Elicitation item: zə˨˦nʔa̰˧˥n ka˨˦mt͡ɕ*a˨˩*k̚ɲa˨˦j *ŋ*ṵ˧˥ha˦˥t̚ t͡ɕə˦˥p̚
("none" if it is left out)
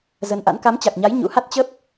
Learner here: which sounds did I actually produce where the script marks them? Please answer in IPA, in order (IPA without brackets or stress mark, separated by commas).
a˨˩, ɲ